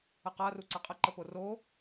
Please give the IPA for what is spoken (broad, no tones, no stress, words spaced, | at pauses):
əqa ruǀɐqʼə ǃəporo